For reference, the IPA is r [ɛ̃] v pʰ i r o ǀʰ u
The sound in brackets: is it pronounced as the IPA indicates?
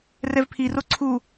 no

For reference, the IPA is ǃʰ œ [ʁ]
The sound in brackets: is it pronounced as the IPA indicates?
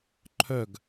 no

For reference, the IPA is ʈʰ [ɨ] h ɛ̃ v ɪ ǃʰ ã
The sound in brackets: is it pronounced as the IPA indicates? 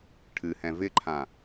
yes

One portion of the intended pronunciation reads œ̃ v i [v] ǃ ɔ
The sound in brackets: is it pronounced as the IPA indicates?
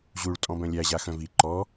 no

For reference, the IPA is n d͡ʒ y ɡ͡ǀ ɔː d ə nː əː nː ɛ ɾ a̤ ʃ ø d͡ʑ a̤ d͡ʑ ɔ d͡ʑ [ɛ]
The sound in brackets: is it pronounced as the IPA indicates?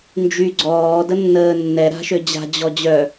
no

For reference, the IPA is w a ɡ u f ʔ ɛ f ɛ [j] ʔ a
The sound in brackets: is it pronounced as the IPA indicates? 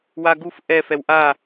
no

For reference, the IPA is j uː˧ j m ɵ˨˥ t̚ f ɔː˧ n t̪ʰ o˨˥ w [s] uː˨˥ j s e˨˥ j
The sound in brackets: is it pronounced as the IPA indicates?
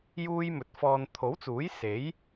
no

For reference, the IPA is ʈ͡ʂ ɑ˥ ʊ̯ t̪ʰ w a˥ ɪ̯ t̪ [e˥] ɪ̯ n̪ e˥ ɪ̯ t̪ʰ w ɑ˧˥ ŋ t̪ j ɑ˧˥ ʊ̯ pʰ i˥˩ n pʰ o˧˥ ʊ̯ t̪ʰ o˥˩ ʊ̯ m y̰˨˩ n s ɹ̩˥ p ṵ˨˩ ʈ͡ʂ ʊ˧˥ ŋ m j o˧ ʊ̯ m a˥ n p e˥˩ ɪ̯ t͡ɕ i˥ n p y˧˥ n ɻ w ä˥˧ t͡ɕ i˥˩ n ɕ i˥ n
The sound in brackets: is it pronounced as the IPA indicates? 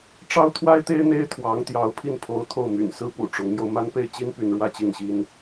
yes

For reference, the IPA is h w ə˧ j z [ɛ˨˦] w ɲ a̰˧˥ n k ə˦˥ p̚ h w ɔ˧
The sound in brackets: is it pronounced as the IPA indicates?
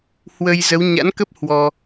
no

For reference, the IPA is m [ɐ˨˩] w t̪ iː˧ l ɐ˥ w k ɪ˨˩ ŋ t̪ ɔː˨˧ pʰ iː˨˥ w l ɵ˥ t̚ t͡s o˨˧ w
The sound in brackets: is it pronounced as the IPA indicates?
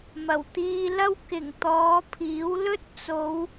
yes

